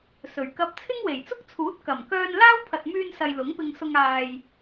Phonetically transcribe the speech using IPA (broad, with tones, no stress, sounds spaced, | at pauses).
s ɵ˨˩ ɥ k ɐ˧ p̚ t͡sʰ ɪ˥ ŋ w e˨˩ j t͡s ʊ˥ k̚ t͡sʰ uː˨˥ t̚ k ɐ˨˩ m k œː˧ n l aː˥ w pʰ ɐ˨ t̚ m yː˧ n s ɐ˨ j l ʊ˨˥ ŋ p ɪ˧ ŋ s ʊ˧ ŋ aː˨ j